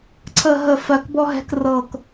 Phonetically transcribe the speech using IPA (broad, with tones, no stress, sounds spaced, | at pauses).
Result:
ǀʰ ə˦˨ ɦ ə˦˨ f ɜ˦˨ k b ɔ˥ ɦ ɛ̤˥ k r ɤ˦˨ k